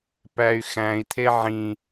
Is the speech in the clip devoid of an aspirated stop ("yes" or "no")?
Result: no